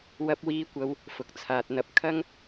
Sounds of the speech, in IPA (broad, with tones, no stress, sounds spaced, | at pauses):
w ɐ˧ p̚ w iː˧ kʷ ɐ˧ w | f ʊ˨ k̚ t͡sʰ aː˨ t̚ n̪ ɐ˧ p̚ kʰ ɐ˥ ŋ